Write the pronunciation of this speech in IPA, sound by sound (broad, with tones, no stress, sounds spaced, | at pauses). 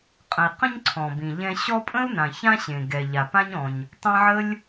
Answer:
qʼ ə̃˩ i̯ q ə̃˦ ɲ ǀʰ ɔ̃˩ b ĩ˩ ʎ ɛ̃˦ ɕ ɔ˦ pʼ ə̃˥ u̯ n ã˩ ç ã˦ ɕ ẽ˩ ɡ ɛ˩ ʎ a˩ p ã˦ ɲ ɔ̃˨ ɲ | tˤ ɛ̃˦ ʕ ə˥ lʲ